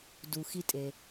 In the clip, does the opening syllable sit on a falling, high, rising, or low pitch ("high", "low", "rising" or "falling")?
low